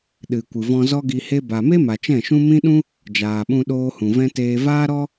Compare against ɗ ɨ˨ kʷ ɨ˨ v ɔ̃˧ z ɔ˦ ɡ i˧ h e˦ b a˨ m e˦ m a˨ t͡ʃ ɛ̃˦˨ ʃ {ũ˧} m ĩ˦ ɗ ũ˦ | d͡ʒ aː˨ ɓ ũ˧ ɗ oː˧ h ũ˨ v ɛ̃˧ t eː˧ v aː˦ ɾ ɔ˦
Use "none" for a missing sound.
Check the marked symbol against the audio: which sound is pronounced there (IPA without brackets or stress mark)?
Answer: ũ˦